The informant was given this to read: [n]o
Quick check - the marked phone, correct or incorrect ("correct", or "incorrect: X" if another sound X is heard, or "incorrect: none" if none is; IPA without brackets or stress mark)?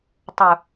incorrect: tˤ